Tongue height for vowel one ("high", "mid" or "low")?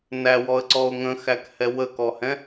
low